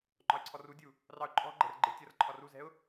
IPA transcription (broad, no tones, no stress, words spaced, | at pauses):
ŋ͡ǃɒɪ̯ǀʰɔrudʲu | rɑʊ̯ǃʼɔ̤ɡ͡ǃɛ̤r ɡ͡ǃɪ tʲʌrǃʰɒ ruzɛ̤ʊ̯